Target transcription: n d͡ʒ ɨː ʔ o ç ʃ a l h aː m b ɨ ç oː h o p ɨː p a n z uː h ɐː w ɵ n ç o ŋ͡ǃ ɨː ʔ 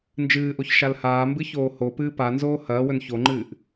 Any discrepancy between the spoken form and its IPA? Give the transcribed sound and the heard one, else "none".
uː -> oː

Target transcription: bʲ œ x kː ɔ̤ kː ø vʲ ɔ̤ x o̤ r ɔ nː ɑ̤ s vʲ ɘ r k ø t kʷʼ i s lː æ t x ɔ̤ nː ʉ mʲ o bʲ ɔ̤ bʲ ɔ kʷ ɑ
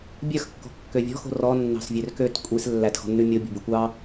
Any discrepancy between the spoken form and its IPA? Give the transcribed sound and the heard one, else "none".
ɘ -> ø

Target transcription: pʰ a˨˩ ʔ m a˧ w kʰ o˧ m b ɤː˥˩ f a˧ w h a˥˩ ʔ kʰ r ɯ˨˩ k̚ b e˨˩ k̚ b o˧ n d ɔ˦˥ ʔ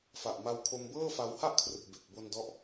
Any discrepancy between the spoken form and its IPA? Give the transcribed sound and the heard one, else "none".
pʰ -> f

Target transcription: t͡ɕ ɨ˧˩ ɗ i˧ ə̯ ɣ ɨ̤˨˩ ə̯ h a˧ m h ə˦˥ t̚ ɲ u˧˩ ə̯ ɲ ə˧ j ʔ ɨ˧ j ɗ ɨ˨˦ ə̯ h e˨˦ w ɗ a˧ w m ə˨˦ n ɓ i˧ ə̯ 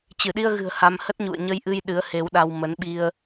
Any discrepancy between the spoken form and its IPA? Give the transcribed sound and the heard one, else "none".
u˧˩ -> ṵ˧˨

